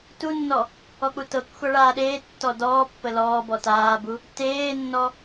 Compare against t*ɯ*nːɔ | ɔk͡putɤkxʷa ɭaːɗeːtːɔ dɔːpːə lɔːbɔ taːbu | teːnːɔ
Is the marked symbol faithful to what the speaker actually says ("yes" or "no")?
no